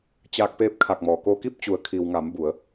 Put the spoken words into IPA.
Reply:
t͡ɕ aː˧ k̚ p eː˧˥ p̚ kʰ a˧˩ k̚ m ɔː˩ k oː˧ k i˥˨ p̚ t͡ɕ u˩˧ ə̯ kʰ i˩ w ŋ a˩˧ m b u˩˧ ə̯

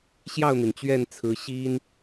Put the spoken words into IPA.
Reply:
ɕ j ɑ˥˩ ʊ̯ n̪ i˩ n t͡ɕ ɥ ɛ˥˩ n t͡sʰ ɹ̩˧˥ ɕ i˥ n

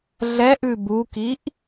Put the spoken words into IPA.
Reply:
ɮ ɛ ʔ ʉ b u k i ʔ

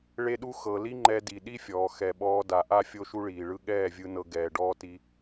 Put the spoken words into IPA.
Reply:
ɭ e˦ ɗ u˦ x ɤ˨ l i˦ ŋ͡ǃ ɛ˧ d i˨ ɗ i˦ fʲ ɔː˨ x ɛ˨ ɓ ɔː˧ d a˨ ʔ a˦ fʲ o˦ ʃ u˦ ɭ iː˨ ɭ ɯ˦ ɠ ɛː˦˨ vʲ ɯ˧ n ɤ˧ ɡ ɛː˨ ɖ ɔː˧ t i˧

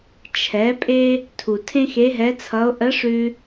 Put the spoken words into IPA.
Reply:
t͡ʃʰ ɛ˩˧ pʼ e˧ | tʰ u˩ tʰ ẽ˥ x e˧˥ ɦ ɛ˧˥ t͡sʰ ʌ˧˥ o̯ ʔ ə˧˥ ʂ ʉ˧

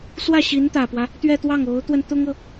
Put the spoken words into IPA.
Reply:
s w ä˥˩ ɕ i˧˥ n t̪ ä˨˩ p w ä˦ | t̪ ɥ ɛ˥˧ t̪ w ɑ˥˩ ŋ o˧˥ ʊ̯ t̪ w ə˧ n t̪ ʊ˥ ŋ ɤ˨

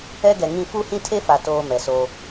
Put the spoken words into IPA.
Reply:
ɛ˦ ɡ ɛ˨ ŋ ĩ˦˨ f u˦ h ĩ˦ tʰ e˦ f a˨ t oː˦ m ɛ˨ s oː˦

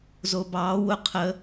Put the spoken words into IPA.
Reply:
z o b ɑː w ʊ qʰ ə

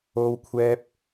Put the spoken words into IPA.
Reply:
o˥ w kʷʰ ɛː˥ p̚

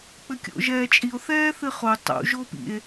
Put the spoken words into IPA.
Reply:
k͡p ɘ kʲ o̰ ʒ ɛː t͡ʃʼ i o̯ θ ɛː θ ɨ χ o tˤ ṵ ʒ o p ḭ e̯

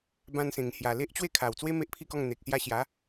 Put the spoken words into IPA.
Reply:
b ã˧ n s ẽ˨˩ ŋ h j a˨˩ l e˦ ʔ t͡ɕ w e˥˧ kʰ a˨˩ w t͡s w e˦ m e˦ ʔ pʰ i˥˧ k ɔ˥˧ ŋ n̪ e˨ k̚ s j a˧ ɕ j a˨˦

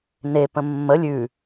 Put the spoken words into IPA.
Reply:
n e p ə̃ mː ə lʲ ʉ

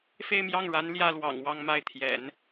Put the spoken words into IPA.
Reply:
f e˥˧ ɪ̯ m j ɑ˥˩ ŋ ɻ a˧˥ n l j ä˥ l w ɑ̰˨˩ ŋ w ɑ˥˧ ŋ m a˥˩ ɪ̯ t̪ʰ j ɛ̰˨˩˦ n

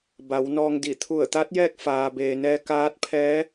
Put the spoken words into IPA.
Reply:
b a˩˧ w n ɔː˧ ŋ d i˧˩ t̪ʰ u˧˩ ə̯ t̪ a˧˥ t̚ j ɛː˥˨ k̚ f aː˩ b eː˩ n ɛː˧ k aː˧˥ t̚ pʰ ɛː˧˥

